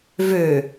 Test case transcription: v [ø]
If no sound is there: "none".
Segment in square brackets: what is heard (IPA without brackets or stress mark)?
ø